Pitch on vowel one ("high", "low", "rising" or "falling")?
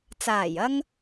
low